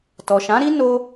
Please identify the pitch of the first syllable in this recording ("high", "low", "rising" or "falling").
low